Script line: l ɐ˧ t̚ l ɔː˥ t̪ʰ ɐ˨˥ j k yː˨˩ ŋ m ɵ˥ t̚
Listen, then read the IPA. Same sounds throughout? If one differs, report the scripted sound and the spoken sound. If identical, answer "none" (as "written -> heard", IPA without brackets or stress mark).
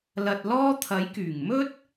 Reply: none